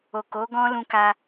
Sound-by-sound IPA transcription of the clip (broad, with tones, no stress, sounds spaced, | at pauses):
o˨ k o˨˦ ɡ ɔ̃˦ l ũ˧ k a˧